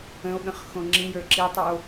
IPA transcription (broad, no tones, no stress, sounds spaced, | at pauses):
ə̃ o̯ ɠ ə̃ χ x õ ŋ͡ǁ ĩ j ə˞ ǁ i tˤ ʉ o̯